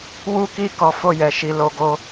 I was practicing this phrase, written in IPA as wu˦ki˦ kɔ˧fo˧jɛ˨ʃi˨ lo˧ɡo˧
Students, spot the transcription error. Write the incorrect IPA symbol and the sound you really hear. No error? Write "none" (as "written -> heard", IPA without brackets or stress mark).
none